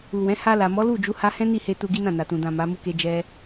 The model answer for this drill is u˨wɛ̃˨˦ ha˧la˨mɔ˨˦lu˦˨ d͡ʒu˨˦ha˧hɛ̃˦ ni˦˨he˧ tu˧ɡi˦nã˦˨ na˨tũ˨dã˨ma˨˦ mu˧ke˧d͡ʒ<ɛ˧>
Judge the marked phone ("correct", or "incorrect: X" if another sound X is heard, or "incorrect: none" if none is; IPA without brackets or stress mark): correct